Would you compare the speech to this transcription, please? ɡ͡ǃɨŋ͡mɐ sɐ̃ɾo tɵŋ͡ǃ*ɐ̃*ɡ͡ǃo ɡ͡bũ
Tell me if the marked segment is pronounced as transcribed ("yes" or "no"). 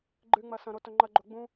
no